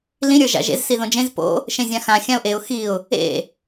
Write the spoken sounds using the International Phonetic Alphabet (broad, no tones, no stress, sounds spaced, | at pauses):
l ĩ ɾʲ ə˞ ʒ a̰ ʒ ḛ z s i ð õ d͡ʒ ẽ z p o̰ | ʃ ẽ zʲ ã x ã xʲ ã ʊ̯ ʔ e ʊ̯ x i ʊ̯ | ḛ